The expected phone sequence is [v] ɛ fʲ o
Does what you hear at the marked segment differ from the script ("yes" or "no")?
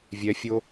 yes